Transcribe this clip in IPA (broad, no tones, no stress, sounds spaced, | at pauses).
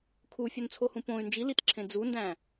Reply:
kʰ u fʲ o n t͡sʰ o h ũ p õ y̯ n d͡ʒ i l i t ǁʰ ẽ d͡z u n d æ̃